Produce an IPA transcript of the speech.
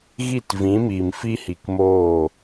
ɣ i˦˨ t v ĩ˨˦ m iː˨ m f i˦ h i˨ k m oː˦˨

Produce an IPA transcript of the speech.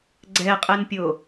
ɡ͡ǀ ɛ qʼ ɛ n pʲ o

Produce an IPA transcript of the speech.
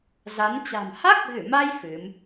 z a˨˦ n t͡ɕ a̤˨˩ m h a˦˥ k̚ ɣ ɨ˧˩ m a˧ j f ɨ˨˦ m

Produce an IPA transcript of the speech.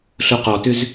ɬ o q ɔ t ʏ z

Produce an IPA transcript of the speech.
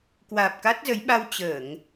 k w aː˨˩ p̚ k a˦˥ t̚ z ə˨˦ j ɓ a˧ w t͡ɕ əː˧˩˨ ŋ

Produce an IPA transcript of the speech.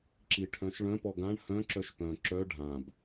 ǁ i ʈʰ œ̃ ʃ ɭ œ̃ p ɔ ɡ ã ɳ h œ̃ ǁ œ ʃ p œ̃ ǁ œ ɖʱ ã b

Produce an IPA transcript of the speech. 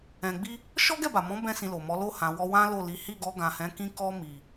ɛ̃˧ ɡ͡b i˦ | ʃ ɔ˦ ɡ ɛ˦˨ b a˨ m ɔ̃˨˦ b ɛ̃˦ s ĩ˧ l o˨ m ɔ˨˦ l o˦˨ h ã˨ w ɔ˧ w ã˦ l o˦˨ l i˨˦ h i˦˨ ɡ ɔ˧ ɡ ã˨ h ɛ̃˨˦ k ĩ˧ k ɔ˧ m i˨

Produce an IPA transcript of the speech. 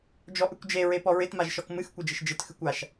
d͡ʒ ɔ ʔ ɨ kʷ d͡ʒ e ɹ e p ɔ ɹ ɪ t m a ʒ ʃ ɔ k m ɨ x kʷ e d͡ʒ ɪ ʃ d͡ʒ ɨ t x ɨ kʷ a ʃ

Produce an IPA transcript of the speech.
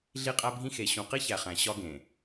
ɮ i˦ qʼ æ˦ bʱ ĩ˦ x e˨ ɕ ũ˨ q i˦ ç æ˨ χ æ̃˨ ɕ ɒ˦ ɡ ẽ˨

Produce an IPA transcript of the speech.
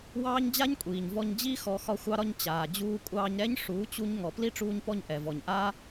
w ɑː˦ ɲ d͡ʑ a˦ ɲ kʷʼ iː˨ ɲ v ɔ˧ ɲ d͡ʑ i˦ x ɔ˧ x ɒ˧ xʷ ɑ˧ ɾ ɒ˧ ɲ t͡ɕ aː˨ d͡ʑ uː˧ kʷʼ ɑː˧ ɲ ɾ ɛ˦ ɲ ʂ uː˨˦ t͡ɕ u˧ ɲ ŋ ɔ˨ p l i˦ ʈ͡ʂ uː˧ ɲ p ɔ˧ ɲ ʔ ɛ˨ v ɔ˨ ɲ ʔ aː˦

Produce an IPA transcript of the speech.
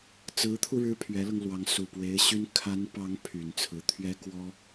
t͡s ɹ̩˧˥ t̪ʰ u˧ ɻ ɻ̩˥ pʰ ɥ ɛ˧˥ l ɤ˧ ŋ l w ɑ˧˥ ŋ s u˨˩ p w e˧˥ ɪ̯ ɕ y˥ n kʰ a˧˥ n p ɑ˧˥ ŋ pʰ y˨˩ n t͡sʰ ɹ̩˧˥ t̪ʰ ɥ ɛ˥ k w ɔ˥

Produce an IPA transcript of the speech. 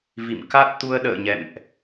v ḭ˧˨ m k a˦˥ t̚ t̪ u˧ ə̯ ɗ ə̰ː˧˨ ɲ ɛ̰˧˨ m ʔ

